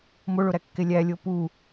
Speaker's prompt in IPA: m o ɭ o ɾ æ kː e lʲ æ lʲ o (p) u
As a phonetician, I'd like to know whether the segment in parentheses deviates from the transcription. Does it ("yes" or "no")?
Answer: no